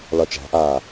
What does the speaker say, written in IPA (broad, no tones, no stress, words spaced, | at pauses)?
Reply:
lɒt͡ʃæ̤ʔaː